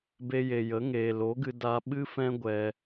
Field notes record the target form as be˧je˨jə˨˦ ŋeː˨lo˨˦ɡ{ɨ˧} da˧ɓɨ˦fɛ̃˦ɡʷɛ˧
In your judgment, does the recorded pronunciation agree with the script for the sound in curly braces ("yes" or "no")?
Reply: yes